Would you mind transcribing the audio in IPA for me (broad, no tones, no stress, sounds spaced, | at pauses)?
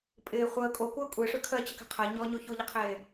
pʼ ɪː χʷ əː kʼ o kʷ əː kʷʼ e ʂ ø kʰ ɜ t͡ɕ ə k ɛ̤ qʰ ɜ ɲ ɔ ɲ o ç o ʎ ɪ qʰ eː